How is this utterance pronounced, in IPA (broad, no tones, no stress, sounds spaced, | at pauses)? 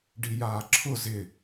ɖ i j aː ǁʰ ʊ z ɪ